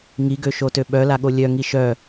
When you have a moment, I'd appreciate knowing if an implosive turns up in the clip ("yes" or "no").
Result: yes